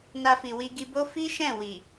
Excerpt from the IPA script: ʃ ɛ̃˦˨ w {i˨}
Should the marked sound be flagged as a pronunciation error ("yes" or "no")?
no